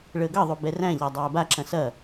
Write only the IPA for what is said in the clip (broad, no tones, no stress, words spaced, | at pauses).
ɭəːɡʌðˤo bɛræ̃ʎa dˤæːbaǁɐ̃ sɐ